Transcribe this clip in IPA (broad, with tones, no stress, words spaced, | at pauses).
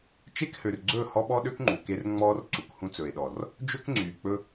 t͡ʃe˦khø˨r ɡ͡ǀɵ˦˨hɔ˦ɓɔ˦ɗø˦k ŋ͡ǃu˨ke˦rŋ͡mɔː˦r ǀu˨khũ˦t͡sɵ˨e̯ɗɔ˨r | d͡ʒɵ˦kŋ͡ǀyː˨k͡pɵ˦